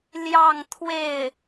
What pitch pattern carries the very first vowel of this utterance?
falling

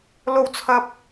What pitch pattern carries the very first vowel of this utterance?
low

